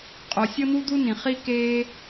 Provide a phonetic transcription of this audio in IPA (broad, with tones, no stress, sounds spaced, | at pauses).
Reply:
qʼ o˩ sʲ ɤ˥ n̪ u˥ d̪ u˥ n ĩ˩ χ i˥ k eː˥